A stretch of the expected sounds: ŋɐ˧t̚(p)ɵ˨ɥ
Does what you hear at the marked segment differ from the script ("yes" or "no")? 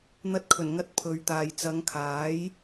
yes